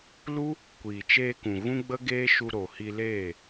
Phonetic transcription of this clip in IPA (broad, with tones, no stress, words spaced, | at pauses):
lu˦ | kʷiː˨t͡ʃeː˧kũ˨ ɣũ˦ɡ͡bə˦ɡeː˦ ʃu˧ɾo˨hi˧leː˦˨